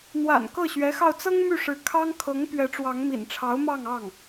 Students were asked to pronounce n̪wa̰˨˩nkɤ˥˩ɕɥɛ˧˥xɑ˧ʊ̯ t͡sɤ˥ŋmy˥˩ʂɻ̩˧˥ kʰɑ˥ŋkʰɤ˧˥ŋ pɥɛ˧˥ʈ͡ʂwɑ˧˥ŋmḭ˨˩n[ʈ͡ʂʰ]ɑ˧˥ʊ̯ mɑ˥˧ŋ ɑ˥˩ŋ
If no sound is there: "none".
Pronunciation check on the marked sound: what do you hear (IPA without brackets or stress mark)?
ʈ͡ʂʰ